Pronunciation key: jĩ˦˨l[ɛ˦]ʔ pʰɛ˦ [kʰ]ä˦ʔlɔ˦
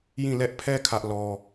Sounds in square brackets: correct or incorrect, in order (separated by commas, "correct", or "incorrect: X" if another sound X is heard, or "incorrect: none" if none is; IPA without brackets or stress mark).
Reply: correct, correct